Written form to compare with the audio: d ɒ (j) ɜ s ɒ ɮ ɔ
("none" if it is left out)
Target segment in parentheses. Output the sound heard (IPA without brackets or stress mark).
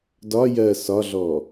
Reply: j